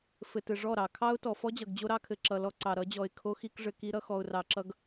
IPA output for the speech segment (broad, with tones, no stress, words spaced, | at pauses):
fɘ˨tɘ˨ʐɔ˦˨ɾɑ˨ kʰɑ˦ʊ̯tɔ˨fɔ˦ d͡ʑʌ˨ɡd͡ʑo˦ɾɑ˦kʰɘ˨ ǁʌ˨lɔ˦ǀɑ˨ ɾʌ˨˦d͡ʑɔ˨ɪ̯ kʰo˦xi˦k ʐɘ˨ki˦ ɾʌ˦xɔ˨ʊ̯rɑ˨ǁʌ˦ɡ